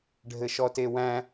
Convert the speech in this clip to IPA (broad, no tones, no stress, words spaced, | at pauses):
ɖʱɘʃɔtewæ̃